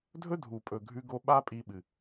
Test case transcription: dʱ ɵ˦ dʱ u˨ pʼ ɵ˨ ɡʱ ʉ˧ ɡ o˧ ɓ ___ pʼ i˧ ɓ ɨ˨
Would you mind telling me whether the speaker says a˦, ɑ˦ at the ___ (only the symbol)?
a˦